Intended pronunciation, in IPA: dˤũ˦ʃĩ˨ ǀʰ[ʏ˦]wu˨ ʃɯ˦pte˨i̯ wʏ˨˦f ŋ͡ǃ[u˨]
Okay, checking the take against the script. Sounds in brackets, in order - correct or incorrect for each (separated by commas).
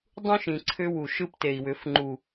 correct, correct